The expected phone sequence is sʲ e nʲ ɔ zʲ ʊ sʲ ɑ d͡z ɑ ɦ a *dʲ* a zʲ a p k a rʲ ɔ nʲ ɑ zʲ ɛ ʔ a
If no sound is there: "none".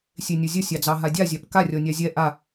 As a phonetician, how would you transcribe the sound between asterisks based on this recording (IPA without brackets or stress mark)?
dʲ